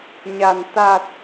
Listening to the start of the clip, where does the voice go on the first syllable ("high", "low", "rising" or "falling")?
low